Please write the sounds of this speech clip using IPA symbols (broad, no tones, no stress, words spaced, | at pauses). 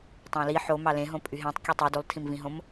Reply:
tˤɑ̃li ħo mɑlẽɦõ pʼyɦẽtˤ kʲutˤi dulˠtʰĩmvĩɦõm